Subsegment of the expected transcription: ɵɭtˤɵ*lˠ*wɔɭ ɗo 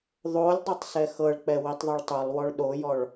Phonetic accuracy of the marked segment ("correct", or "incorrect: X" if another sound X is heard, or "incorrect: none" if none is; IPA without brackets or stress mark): correct